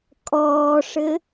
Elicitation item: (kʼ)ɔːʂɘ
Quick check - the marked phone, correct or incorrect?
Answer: correct